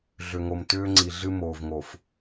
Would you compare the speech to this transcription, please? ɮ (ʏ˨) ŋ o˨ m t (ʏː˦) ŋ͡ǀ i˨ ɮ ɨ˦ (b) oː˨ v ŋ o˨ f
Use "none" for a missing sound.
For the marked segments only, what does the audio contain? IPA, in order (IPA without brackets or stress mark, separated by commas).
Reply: ʏ˨, ʏː˦, m